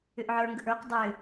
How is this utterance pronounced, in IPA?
ʏ ʔ ʕ ə˞ ŋ ɡ ə ʔ ə˞ q dˤ ʏ

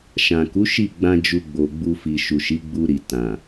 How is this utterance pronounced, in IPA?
ʃ ã˨ k u˨˦ ʃ i˦˨ ɡ͡b ã˧ d͡ʒ u˧ ɡ͡b o˨ ɡ͡b u˧ f i˨ ʃ u˨ ʃ i˨˦ ɡ͡b u˧ ɾ i˨ t ã˨

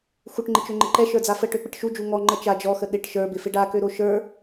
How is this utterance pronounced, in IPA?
x u ʈ ŋ͡ǃ ɪ t͡ʃ ø ŋ͡ǃ ɪ ǃ ɛ ʃ ə˞ d͡z a f ə ʈ ø k͡p ɪ ʈ ʃ u d͡ʒ u ŋ ɔ ŋ͡ǃ ə t͡ʃ a d͡ʒ ɔ x ə ɗ ɪ ʈ ʃ ə˞ b ɪ f ɪ ɖ a k ø ɾ o ʃ ə˞

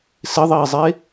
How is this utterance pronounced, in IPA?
s ɪ ðˤ iː zˤ e

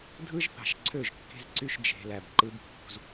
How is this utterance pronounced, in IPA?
dʱ ɯ˦ ʒ θ ɑ̤˨ ʃ ǀʰ ø˦˨ ʒ kː e̤˦ z ǀ y˦ ʃ d͡ʒ e̤˨ l æ˨ b ǃ ɯ˦ b pː ṳ˦ z

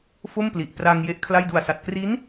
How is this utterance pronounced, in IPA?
f o˥˩ m p l i˨˩ ʔ p r a˧ ŋ j e˦˥ ʔ kʰ l a˥˩ j d u˨˩ a̯ s a˨˩ t̚ k r i˦˥ n

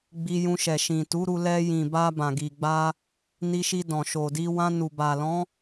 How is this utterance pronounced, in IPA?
ɡ͡b i˧ j ũ˧ ʃ ɛ˨ ʃ ĩ˨ t u˨˦ ɾ u˧ l ɛ˧ j ĩ˨ b a˧ b ã˨ ɡ i˨ ɡ͡b a˧ | n i˧ ʃ i˧ d ɔ̃˨ ʃ o˨ d i˧ w ã˧ n u˨ b a˨ l ɔ̃˨˦

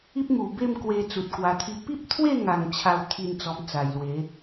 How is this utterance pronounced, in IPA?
i˦ p̚ m u˨˩ b e˥˧ m k w e˧ t͡s u˨ t̚ k w a˧ t̪ʰ i˦ p i˦ p̚ t̪ʰ w e˥˧ ŋ a˨˩ ŋ t͡ɕʰ a˥˧ w t̪ʰ i˥˧ n t͡s ɔ˧ m t͡s a˨˩ j l w e˨˦

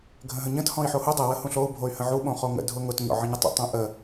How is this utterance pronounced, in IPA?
ɡʱ ə̃ ɦ ə̃ ɲ ə̃ t h ɔ̃ i̯ ħ o h u dˤ ə w ə h ũ ɬ o u̯ bʱ o y̯ h ə̃ ʕ u ɓ õ χ o ŋ ə̰ dʱ ʊ ŋ ʊ t ɲ ɔ̰ ʕ ə̃ ɲ ʊ tˤ ə̰ tˤ õ ʔ ə

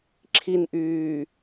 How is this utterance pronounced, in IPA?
ǁʰ i n ʔ yː

